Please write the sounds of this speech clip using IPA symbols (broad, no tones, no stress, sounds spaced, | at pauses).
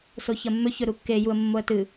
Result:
s o ç ɐ mː ɵ ç ɵ ɾ u kː e j u ə̯ mː o ə̯ t ɨ